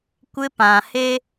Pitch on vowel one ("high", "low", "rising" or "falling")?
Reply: high